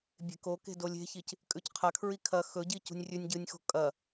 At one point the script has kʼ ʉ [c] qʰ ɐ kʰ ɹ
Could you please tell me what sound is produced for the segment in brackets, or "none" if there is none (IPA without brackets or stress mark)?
c